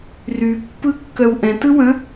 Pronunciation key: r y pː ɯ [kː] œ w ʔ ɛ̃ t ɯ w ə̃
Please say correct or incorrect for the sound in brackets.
correct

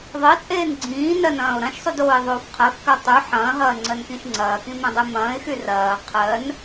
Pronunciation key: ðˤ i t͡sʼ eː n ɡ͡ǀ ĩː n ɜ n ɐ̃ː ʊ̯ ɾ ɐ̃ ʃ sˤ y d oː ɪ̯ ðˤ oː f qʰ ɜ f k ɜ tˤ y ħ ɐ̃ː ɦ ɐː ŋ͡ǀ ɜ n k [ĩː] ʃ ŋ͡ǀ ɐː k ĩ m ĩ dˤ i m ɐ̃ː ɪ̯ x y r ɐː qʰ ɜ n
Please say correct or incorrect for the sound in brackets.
incorrect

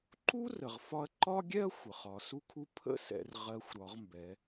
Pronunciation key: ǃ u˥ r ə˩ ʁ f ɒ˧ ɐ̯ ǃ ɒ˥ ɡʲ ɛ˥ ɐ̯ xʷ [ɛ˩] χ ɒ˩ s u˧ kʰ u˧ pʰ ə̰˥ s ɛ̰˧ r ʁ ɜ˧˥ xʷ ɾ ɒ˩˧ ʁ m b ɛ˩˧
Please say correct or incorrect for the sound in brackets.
incorrect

